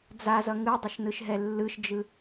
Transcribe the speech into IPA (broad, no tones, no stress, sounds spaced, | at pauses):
d͡z a z ʌ ŋ ɯ dˤ ʌ ʃ n ɯ ʃ ɦ ɛ lː ɯ ʃ d͡ʒ ɯ